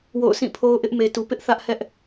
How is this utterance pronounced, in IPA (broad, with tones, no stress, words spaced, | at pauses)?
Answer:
wo̰˦˨ʊ̯ sʰĩ˦˨pʰo˦ʊ̯ʔɪ˦ʔ me˨tu˨pɪ˦ʔ θä˦ʔhɛ˦ʔ